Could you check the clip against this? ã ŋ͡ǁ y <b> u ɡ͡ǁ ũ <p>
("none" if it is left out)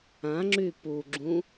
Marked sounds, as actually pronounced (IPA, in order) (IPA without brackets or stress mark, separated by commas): p, none